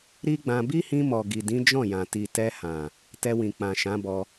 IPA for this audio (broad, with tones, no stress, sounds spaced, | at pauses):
ɾ i˦ ɡ͡b ã˧ b i˦ h ĩ˧ m ɔ˨ ɡ i˨ d ĩ˨˦ d͡ʒ ɔ̃˦˨ j ã˨ t i˨ t ɛ˧ h ã˨ | t ɛ˧ w ĩ˨ k͡p ã˨ ʃ ã˨˦ b ɔ˧